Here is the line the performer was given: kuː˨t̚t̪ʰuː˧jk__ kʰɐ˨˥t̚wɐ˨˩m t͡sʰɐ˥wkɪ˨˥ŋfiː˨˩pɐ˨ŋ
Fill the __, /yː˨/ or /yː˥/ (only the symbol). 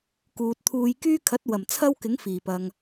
yː˥